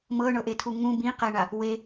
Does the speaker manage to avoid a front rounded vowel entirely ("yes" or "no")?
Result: yes